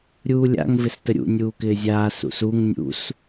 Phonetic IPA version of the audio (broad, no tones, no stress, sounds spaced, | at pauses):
ɾʲ uː lʲ a̰ ŋ v ɪ s t ə ɾʲ ṵ nʲ uː k ɪː zʲ aː s ṵ s u ŋ nʲ ṵ s